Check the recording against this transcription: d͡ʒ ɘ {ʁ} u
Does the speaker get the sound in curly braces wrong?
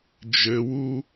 yes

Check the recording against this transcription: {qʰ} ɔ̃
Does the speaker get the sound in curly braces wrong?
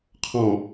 no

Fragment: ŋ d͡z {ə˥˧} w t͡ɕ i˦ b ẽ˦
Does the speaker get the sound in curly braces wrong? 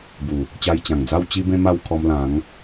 yes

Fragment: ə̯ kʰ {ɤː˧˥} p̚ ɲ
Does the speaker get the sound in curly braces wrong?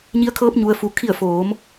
no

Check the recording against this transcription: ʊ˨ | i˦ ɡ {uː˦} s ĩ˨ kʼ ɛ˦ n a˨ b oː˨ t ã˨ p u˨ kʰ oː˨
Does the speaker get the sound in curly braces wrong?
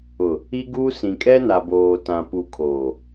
no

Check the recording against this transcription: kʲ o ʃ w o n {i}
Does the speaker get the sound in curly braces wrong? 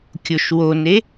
yes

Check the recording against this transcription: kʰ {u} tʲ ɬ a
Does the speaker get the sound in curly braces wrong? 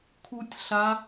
no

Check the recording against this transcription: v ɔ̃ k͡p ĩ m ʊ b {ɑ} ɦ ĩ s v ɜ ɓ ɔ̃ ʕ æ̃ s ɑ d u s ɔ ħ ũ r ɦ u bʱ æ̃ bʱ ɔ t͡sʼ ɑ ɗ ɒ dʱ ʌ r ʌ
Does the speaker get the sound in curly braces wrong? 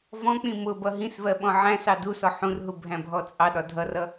yes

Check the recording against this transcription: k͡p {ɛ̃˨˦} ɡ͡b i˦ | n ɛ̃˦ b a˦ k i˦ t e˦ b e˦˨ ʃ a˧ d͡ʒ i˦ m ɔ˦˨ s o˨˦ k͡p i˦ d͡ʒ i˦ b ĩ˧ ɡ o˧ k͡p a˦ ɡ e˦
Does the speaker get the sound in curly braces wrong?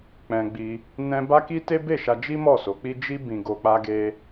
yes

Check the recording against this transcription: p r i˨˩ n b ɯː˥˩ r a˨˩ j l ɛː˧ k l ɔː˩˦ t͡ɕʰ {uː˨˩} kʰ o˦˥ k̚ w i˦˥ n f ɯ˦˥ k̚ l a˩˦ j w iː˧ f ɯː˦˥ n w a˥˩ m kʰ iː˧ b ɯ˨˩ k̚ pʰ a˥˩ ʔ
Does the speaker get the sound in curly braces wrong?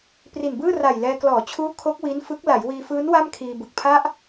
yes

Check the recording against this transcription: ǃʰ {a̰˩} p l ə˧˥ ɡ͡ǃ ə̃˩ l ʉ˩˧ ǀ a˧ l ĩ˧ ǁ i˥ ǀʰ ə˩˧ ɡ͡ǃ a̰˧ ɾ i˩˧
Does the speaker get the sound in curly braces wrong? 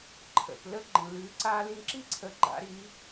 yes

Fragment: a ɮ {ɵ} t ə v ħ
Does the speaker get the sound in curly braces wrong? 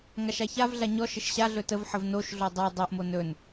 no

